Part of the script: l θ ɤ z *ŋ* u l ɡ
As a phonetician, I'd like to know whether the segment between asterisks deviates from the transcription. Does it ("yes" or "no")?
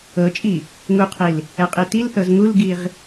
no